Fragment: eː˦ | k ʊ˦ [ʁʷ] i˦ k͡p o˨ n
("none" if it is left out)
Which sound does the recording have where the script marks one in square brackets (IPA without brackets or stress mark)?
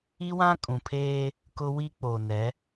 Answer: w